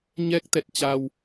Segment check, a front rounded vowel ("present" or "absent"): absent